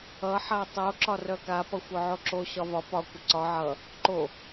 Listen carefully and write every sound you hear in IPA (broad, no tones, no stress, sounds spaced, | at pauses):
ʌ ħ a tˤ o ǁ ɒ r œ k a p ʌ xʷ œ ʕ o ǁ o ɕ ɒ v ɒ p ɒ kʷ ə ǀ ɒ ʕ ʌ | ǃ o